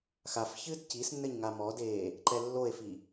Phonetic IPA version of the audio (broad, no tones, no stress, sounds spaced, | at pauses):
x a f ç ɨː d c i s nː ɘ ɲ ŋ a m ɔ d eː | ǃ ɛ lː o e̯ f i